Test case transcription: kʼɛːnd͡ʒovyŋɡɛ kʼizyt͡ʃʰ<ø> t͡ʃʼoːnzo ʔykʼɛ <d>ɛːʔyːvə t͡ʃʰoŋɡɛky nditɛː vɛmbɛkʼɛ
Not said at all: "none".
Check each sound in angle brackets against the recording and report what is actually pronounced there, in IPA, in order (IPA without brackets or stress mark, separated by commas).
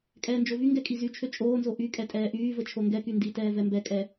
ø, tʼ